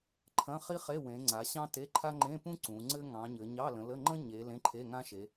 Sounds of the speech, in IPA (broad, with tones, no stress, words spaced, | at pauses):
ǃʰɐ̃˧˥˧χi˥χe˧˥˧wẽ˨˦ ŋ͡ǀa˨˦ɕɑ̃˥ te˧˥˧ǃʰa˥ ŋ͡ǃẽ˧˥˧pũ˥ ǀũ˨˦ŋ͡ǀɘ˥ ŋɑ̃˨˦ɲɘ˨˦ ɲɑ˧˥˧lə̃˨˦lə˧˥˧ ŋ͡ǃə̃˥ɲe˨˦ lẽ˧˥˧ǃʰe˧˥˧ŋã˥ʃe˨˦